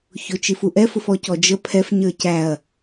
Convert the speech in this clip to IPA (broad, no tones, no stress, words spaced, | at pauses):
çʊt͡ʃifu ʔɛfʊf ɔcɔd͡ʒə pʰɛf ɲə˞cæɐ̯